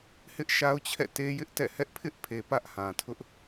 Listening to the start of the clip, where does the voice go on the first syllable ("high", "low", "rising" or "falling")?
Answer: high